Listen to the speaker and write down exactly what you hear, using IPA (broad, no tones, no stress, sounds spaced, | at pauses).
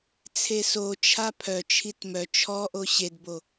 t͡sʰ e s o t͡ʃʰ a pʰ œ t͡ʃʰ i t m œ t͡ʃʰ ɔ ʔ o ɕ e d b o